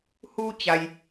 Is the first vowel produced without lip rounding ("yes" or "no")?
no